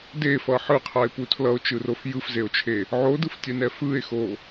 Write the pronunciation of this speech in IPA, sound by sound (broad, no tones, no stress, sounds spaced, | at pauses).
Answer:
d e f ʌ ħ ɯ qʰ a e̯ p u tʰ l ʌ o̯ t͡ʃ ɯ r o f j ɯ f z e o̯ t͡ʃʰ e | ʕ o d ɯ f tʲ ɛ n ɛ f ɯ e̯ x o